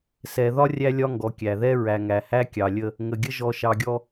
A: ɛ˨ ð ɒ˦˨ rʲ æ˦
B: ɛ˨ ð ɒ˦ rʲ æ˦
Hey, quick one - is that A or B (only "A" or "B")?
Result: B